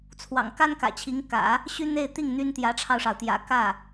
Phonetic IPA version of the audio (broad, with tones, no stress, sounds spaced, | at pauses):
t͡sʰ w ɑ̰˨˩ ŋ k a˥ n k ä̰˨˩ t͡ɕʰ i˧˥ ŋ k ä̰˨˩˦ | ɕ y˥ n̪ e˥˧ ɪ̯ t̪ i˥˩ ŋ n̪ y˥ n t̪ j ä˧˥ ʈ͡ʂʰ ɑ˧ ʊ̯ ʂ ɑ˩ ʊ̯ t̪ j ä̰˨˩ k ä˥˩